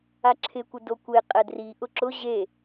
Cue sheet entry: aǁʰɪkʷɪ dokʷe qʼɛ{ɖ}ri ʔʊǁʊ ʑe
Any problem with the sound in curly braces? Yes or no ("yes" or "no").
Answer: yes